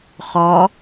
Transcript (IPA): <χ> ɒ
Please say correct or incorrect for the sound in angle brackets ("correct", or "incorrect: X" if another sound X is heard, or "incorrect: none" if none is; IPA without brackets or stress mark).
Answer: correct